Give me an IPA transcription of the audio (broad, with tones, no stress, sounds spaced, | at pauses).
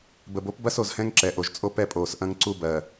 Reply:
b ə˨ b o˦ p b ɐ˦ s o˨ z h ɛ̃˦ ŋ ǁ ɛ˨ ʔ o˨ ʒ t͡sʼ o˦ p ɛ˦˨ pʼ oː˨ s ʔ ɐ̃˦ ŋ ǀ u˦ b ɜ˨